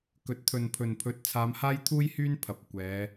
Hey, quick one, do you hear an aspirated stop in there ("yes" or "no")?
yes